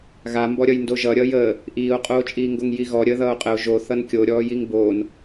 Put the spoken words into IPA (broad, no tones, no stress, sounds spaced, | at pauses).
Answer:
ɣ a m b ɔ ɾʲ ʌ j n d o ʒ ʌ ɾʲ ʌː j əː | ʔ iː o̯ qʼ oː t͡ʃʼ iː ŋ ɡ o ŋ j i ɣ ɔ ɾʲ əː ð ʌː o̯ qʼ ə o̯ ʒ o θ ʌ n kʲ o ɾʲ ɔː j i ŋ b oː n